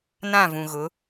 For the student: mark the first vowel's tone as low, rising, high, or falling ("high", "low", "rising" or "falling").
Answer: falling